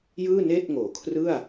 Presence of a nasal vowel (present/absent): absent